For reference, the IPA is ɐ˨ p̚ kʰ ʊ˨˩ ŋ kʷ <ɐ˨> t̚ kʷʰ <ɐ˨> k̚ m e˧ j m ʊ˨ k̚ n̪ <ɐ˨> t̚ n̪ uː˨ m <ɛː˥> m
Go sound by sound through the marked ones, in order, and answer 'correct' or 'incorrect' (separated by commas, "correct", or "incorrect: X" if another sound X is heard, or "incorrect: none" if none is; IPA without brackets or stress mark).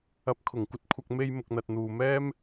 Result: incorrect: ɐ˧, correct, correct, correct